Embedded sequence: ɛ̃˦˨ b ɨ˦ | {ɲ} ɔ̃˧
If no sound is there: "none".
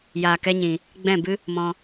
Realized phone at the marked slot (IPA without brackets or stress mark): m